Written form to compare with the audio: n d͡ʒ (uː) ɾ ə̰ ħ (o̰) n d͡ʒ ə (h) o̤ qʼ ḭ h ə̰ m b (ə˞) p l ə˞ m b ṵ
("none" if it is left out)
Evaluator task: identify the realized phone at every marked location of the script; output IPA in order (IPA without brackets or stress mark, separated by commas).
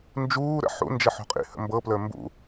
uː, ṵ, ħ, ɤ